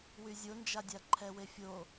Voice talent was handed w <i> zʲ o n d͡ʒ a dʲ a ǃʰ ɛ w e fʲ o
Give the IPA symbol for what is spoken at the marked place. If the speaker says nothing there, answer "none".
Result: y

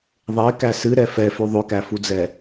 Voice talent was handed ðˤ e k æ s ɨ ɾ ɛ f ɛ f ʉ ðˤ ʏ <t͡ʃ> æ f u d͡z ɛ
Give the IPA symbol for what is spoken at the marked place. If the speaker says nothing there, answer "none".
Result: k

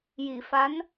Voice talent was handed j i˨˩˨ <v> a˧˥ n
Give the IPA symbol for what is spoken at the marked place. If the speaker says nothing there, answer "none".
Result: f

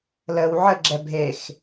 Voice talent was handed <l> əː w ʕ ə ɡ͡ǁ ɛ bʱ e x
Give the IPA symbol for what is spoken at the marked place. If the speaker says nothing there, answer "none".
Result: l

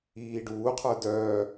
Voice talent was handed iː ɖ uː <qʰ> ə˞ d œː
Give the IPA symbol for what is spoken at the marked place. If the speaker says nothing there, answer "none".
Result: qʰ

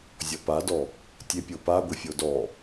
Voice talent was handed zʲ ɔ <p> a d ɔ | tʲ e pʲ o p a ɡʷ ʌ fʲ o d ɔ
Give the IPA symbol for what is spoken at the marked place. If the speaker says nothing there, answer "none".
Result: p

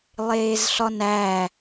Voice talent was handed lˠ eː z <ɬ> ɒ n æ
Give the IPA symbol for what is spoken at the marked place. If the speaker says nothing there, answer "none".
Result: ɬ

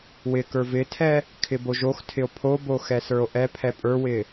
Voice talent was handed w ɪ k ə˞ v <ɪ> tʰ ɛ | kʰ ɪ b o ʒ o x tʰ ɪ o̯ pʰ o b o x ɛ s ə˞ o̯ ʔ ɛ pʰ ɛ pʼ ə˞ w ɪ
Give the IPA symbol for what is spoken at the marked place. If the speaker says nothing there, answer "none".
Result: ɪ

